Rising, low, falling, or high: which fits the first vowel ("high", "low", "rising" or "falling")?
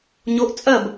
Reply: rising